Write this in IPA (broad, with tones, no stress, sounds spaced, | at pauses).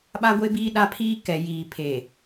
ɓ a˦ ɡʷ e˦ b iː˦ ɗ a˦ pʰ iː˦ k ɛ˨ j iː˨ pʰ eː˨